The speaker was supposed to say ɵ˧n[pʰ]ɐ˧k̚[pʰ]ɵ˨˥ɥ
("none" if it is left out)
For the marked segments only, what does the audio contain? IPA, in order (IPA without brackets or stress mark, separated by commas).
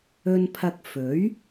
pʰ, f